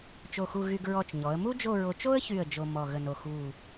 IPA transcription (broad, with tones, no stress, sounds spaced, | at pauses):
t͡ʃ o˧˩ x u˧ ɣ y˧ ɡ ɹ ɔ˧˩ t͡ʃ ɲ ɔ˩˧ ə̯ m u˥ d͡ʒ o˥˧ ɹ o˧ t͡ʃ o˥ ə̯ ç y˧˩ ə̯ d͡ʒ o˧ m ɔ˧˩ ɣ ə˧˩ n o˧˩ x u˧˩